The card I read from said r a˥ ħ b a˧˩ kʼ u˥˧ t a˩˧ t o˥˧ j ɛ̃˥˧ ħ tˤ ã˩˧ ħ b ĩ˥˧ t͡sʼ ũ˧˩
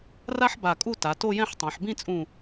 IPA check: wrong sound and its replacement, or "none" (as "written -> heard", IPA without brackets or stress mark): none